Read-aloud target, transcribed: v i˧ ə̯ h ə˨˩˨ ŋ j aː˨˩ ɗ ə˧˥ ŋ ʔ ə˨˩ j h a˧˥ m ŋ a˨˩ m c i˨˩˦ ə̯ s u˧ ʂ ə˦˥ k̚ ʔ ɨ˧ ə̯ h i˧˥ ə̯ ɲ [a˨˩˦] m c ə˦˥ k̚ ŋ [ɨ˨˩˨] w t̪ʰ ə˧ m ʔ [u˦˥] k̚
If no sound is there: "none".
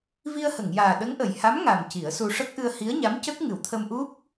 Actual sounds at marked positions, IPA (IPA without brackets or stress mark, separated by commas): a˧˥, ɨ˨˩˨, u˦˥